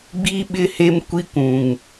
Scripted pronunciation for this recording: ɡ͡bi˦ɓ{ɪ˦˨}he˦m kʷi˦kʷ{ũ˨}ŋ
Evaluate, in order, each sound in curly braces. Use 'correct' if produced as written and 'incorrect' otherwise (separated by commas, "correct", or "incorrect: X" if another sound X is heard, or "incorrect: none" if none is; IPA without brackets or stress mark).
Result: correct, correct